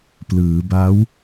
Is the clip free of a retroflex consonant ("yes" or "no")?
yes